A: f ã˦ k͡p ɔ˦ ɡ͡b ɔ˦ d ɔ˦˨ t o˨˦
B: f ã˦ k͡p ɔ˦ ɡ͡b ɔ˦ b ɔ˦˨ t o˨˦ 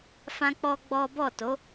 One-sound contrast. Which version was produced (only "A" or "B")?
B